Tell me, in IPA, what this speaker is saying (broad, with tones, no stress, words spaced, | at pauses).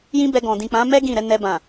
jĩ˦bɛ˧ ɡɔ̃˨ dĩ˨k͡pã˨˦ mɛ˦ ɡĩ˦˨ ɾɛ˨˦ nɛ˧bã˨